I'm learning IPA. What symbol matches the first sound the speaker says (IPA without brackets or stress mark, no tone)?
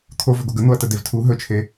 t̪ʰ